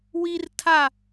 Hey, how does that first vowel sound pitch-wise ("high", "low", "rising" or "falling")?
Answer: high